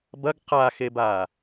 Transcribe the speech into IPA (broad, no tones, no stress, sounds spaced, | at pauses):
b ɐ ɡ q a x e b aː